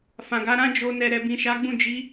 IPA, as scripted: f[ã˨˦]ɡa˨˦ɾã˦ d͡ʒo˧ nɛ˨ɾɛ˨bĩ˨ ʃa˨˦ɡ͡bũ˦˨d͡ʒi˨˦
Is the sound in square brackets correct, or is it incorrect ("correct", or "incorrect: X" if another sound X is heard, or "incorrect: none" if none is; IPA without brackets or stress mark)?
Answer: incorrect: ã˨